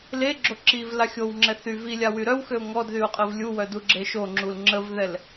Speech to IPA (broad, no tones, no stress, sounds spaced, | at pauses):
l e ɡ͡ǁ o ǁ i v l a xʲ o w ŋ͡ǁ ɛ θ y v i lʲ a w y ɾ œ w x ø ʊ̯ ŋ ɔ d ð y ʊ̯ qʼ ə v lʲ u w œ d u ɡ͡ǁ e ʃ o ŋ͡ǁ u l ŋ͡ǁ ə v ð ɛ l